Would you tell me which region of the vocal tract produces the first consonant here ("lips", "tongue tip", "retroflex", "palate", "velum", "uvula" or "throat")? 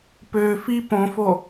lips